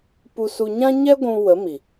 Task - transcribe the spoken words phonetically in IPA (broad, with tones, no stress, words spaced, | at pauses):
pu˧ su˧ɲã˦ ɲɛ˦ɡʷũ˧ wə˨˦mi˨